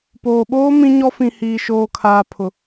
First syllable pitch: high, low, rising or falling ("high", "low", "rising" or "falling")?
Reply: low